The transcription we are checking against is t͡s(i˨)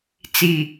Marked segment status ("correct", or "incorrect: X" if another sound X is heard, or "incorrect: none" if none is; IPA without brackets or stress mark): correct